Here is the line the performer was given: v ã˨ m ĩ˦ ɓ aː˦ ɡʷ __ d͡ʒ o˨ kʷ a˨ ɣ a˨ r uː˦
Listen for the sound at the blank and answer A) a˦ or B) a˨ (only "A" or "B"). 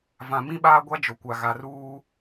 A